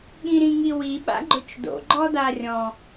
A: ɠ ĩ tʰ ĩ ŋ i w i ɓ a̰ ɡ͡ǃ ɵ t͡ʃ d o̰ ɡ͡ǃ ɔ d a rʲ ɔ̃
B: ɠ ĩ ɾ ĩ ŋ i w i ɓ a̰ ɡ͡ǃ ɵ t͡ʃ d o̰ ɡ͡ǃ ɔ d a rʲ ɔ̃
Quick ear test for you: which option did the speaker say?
B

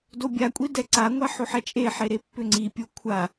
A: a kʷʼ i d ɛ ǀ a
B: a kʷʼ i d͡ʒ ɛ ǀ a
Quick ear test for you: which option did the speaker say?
A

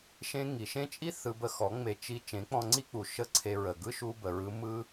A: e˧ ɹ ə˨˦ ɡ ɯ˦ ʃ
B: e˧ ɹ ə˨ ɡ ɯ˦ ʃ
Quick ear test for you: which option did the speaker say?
B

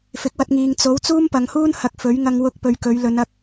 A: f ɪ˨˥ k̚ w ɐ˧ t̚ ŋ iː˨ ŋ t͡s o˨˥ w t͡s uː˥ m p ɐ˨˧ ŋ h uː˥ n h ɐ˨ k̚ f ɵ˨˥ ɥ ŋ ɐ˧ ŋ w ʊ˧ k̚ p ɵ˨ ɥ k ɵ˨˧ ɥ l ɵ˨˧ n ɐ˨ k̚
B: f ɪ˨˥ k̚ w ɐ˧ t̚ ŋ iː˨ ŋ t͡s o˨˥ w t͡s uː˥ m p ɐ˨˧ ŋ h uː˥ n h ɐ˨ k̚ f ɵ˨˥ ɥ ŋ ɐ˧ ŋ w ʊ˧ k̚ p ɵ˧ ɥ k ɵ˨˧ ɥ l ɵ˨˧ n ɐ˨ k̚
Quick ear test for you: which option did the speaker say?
A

